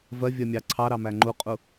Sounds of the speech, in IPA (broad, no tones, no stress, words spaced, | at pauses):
vɜvʲɜmʲɑ ǀʰɑɾɑmæ ŋ͡ǃuqʼu